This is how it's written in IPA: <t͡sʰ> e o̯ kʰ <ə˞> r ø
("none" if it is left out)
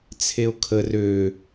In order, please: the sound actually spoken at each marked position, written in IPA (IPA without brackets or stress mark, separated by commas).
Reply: t͡sʰ, ə